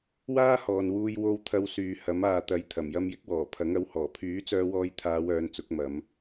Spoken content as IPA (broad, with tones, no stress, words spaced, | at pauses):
waː˥hɔː˨nwuː˧j wo˧w t̪ʰɐ˧wsyː˨hɐ˨˥m aː˨t̪ɐ˨˥j t̪ʰɐ˨˩mjɐ˧mjɪ˥k̚wɔː˨˩ pʰɐ˨˥ŋɐ˨˥whɔː˨˩ pʰyː˨˥t͡sœː˧wɔː˧jt̪ʰaː˨˧w œː˨˧nt͡sʊ˨˥k̚mɐ˨˧m